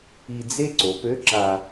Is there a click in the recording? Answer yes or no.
yes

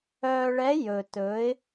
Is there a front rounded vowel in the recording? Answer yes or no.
yes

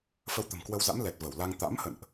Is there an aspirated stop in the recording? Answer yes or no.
no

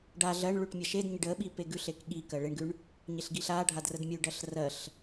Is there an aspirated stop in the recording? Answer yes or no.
no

